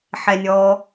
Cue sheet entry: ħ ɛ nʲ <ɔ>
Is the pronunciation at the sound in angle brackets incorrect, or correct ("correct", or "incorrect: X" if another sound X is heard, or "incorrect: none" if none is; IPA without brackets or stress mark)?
correct